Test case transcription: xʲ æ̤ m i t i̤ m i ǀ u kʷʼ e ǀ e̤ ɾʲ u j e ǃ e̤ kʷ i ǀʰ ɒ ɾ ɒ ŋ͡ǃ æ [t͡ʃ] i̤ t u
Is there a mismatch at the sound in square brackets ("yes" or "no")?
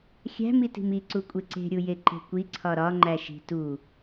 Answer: yes